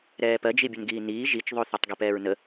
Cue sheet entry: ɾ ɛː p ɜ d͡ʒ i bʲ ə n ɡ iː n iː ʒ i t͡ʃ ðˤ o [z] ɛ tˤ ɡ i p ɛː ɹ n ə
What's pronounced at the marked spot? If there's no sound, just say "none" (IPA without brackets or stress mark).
θ